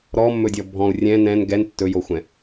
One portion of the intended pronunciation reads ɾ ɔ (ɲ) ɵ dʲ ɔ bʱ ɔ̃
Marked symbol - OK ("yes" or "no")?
no